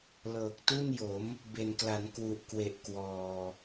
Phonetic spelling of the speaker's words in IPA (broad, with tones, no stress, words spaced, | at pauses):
lɤː˨˩k̚tu˥˩njo˩˦m | be˨˩nkla˩˦n kwu˨˩ʔkwe˨˩ʔ kwɔː˨˩